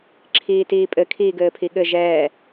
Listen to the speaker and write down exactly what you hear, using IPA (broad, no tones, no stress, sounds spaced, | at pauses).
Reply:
ǁʰ iː t iː pʼ ɘ kʰ iː ɡ ɘː pʰ i ɠ ɘ ʒ ɛː